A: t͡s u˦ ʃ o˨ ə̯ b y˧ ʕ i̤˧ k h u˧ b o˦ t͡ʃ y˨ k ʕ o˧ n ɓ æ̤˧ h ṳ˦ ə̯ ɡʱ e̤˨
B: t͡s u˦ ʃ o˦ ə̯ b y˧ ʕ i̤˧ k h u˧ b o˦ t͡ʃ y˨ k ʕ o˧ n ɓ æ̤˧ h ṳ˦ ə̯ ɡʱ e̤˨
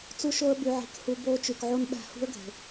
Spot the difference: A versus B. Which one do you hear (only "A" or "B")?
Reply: B